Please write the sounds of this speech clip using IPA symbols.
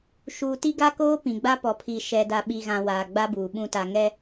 ʃ uː˨ t i˦ ɡ a˦ k oː˦ p ĩ˨ ɡ͡b a˦ p ɔ˨ pʰ i˨ ʃ ɛ˨ d a˨ ɓ i˨ ɣ ã˨ w aː˨ ɡ͡b a˦ b uː˨ ɓ ũ˨ t a˨ ŋ ɛ˦

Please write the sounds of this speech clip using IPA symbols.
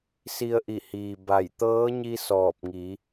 s i˧ ə̯ ʔ i˧˩ h iː˩ b a˧˩ j t̪ ɤː˧˥ ɲ i˧ s ɔː˧˩ p̚ ŋ i˩˧

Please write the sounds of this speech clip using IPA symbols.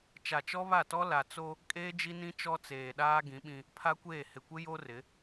t͡ʃ a˨ t͡ʃ ɔ˦ β a˦˨ t ɔ˦ l a˨ t͡s o˦ | kʼ eː˦ d͡ʒ i˦ n ĩ˦ t͡ʃ ɔ˦ t͡s eː˨ ɗ aː˦ ɡ ĩ˨˦ ɓ ĩ˦ | pʰ a˦ kʷ eː˦˨ h ɪ˨ kʷ ɪ˦ j o˦ r ɪ˨˦

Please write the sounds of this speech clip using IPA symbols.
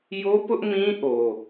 j o˦ p ʊ˦ ʔ m ĩ˦ ʔ o˦

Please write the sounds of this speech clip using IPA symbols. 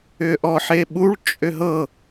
ʏ ʔ ɔ ħ e ɓ u ɭ t͡ʃʼ ʏ ɦ ɤ

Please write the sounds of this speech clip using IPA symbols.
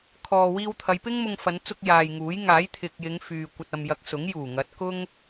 kʰ ɔː˨ w iː˧ w t̪ʰ ɐ˨˧ j p ɪ˥ ŋ m ʊ˧ ŋ f ɐ˨˧ n t͡s ʊ˧ k̚ j aː˨ j ŋ uː˨˥ j ŋ aː˨˥ j t̪ʰ ɪ˨ k̚ j ɪ˨˧ ŋ f yː˨ kʷ ɐ˨ t̚ ɐ˨ m j ɐ˨˥ k̚ s ʊ˨˥ ŋ j uː˨˩ ŋ ɐ˨˥ t̚ k ʊ˥ ŋ

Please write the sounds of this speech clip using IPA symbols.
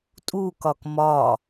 tʼ u k ɒ k m ɒ

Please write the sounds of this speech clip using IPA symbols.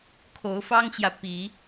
kʰ o˨˦ ʊ̯ f ɑ˦ ŋ t͡ɕ j ä˨ p i˨˦

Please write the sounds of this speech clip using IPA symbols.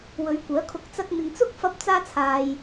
w ɵ˨˧ ɥ kʷ œː˨˥ kʰ ʊ˧ k̚ t͡s ɐ˧ k̚ n̪ ɪ˨ ŋ t͡s ʊ˥ k̚ f ɐ˧ p̚ t͡s aː˥ t͡sʰ aː˨ j

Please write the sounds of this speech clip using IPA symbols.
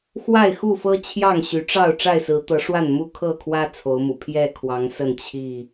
x w a˥˨ ɪ̯ x u˥˨ f ɤ˦ t͡ɕʰ j ɑ˥˨ ŋ ɕ y˨˦ ʈ͡ʂ ɑ˥˨ ʊ̯ ʈ͡ʂ a˥˨ ɪ̯ s ɹ̩˨˦ t̪ ɤ˨˦ ʂ w a˥˨ n m u˦ kʰ ɤ˥˨ kʰ w ä˦ t͡sʰ o˨˦ ʊ̯ m ṵ˨˩ pʰ j ɛ˥˨ kʰ w ɑ˨˦ ŋ s ə˥˨ n t͡ɕʰ i˥˨

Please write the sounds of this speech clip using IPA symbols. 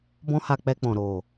b ɔ̃˦ h a˧ k͡p ɛ˧ k͡p ɔ̃˨ ɾ o˨

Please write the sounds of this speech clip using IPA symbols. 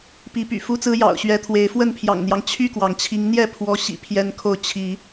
p i˨˦ p y̰˨˩ f u˦ t͡s ɹ̩˦ j ɑ̰˨˩ ʊ̯ ɕ ɥ ɛ˨˦ t̪ʰ w e˨˦ ɪ̯ f w ə˥˨ n pʰ j ɑ̰˨˩ ŋ n̪ j ɑ˦ ŋ t͡ɕʰ y˥˨ k w ɑ˩ ŋ t͡ɕʰ i˨˦ ŋ n̪ j ɛ˥˨ pʰ w ɔ˨˦ ɕ ḭ˨˩ pʰ j ɛ˦ n kʰ o˥˨ ʊ̯ t͡ɕʰ i˨˦

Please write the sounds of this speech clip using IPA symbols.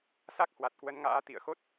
s a˦˥ k̚ h w a˨˩ t̚ k w ə˨˦ n ŋ a̰ː˧˥ t̪ ḭ˧˨ ə̯ x o˦˥ t̚

